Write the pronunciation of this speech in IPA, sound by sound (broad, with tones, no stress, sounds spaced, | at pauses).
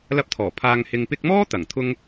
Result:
l ɐ˧ p̚ t̪ʰ ɔː˨˩ pʰ aː˨ ŋ h ɪ˨ ŋ p ɪ˧ k̚ m ɔː˥ t̪ ɐ˨˩ ŋ t̪ʰ ʊ˧ ŋ